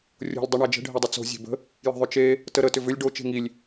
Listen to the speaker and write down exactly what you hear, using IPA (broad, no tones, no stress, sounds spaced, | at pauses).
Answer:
rʲ o̤ lʲ dˤ i ɳ æ d͡ʒ ə̤ ɖʱ e dˤ ʏ t͡s o̤ zʲ e̤ b ə̤ | j ə̤ ðˤ ʏ t͡ʃ e | t ə ɾ ə t ʏ v ʏ lʲ ɖ o t͡ʃ e̤ ŋ i lʲ